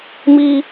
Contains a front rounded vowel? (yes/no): no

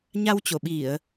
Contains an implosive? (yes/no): yes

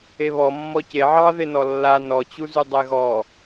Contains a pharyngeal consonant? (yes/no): yes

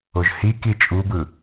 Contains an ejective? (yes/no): yes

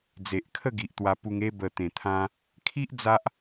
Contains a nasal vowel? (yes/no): yes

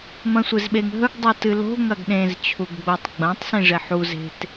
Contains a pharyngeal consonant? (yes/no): yes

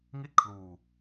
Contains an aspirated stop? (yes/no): yes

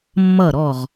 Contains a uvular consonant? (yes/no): yes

